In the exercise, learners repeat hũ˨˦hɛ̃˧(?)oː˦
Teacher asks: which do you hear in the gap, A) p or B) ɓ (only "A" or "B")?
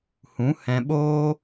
B